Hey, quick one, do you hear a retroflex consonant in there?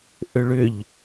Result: yes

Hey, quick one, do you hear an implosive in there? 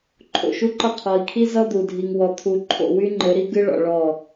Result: no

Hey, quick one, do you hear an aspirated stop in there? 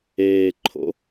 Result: yes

